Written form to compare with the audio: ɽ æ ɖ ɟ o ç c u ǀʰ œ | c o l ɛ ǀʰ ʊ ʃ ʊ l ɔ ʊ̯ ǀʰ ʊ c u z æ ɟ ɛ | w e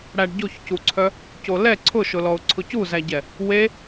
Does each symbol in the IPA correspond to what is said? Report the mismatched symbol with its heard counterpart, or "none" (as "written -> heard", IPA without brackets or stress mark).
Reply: none